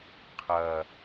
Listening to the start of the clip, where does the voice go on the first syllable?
low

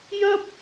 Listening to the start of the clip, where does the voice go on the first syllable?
high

